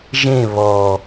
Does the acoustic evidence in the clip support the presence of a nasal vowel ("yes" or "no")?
yes